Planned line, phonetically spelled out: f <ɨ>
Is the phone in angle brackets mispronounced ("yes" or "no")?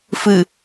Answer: no